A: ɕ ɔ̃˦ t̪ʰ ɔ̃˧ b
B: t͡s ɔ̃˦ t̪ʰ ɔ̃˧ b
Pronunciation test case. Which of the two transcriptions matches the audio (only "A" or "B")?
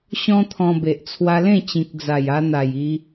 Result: A